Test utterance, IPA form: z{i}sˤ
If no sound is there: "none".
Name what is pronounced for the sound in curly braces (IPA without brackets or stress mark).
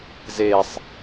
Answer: e